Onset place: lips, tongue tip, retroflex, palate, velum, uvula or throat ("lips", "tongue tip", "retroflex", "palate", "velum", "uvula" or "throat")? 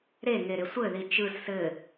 tongue tip